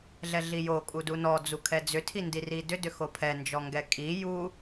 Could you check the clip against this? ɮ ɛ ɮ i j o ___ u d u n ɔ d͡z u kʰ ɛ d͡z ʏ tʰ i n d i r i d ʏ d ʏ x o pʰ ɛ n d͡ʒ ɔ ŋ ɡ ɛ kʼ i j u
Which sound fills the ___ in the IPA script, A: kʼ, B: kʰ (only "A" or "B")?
A